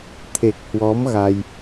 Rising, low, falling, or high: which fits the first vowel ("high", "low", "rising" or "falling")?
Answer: low